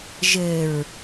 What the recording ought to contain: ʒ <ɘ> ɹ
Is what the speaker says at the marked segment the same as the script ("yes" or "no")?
yes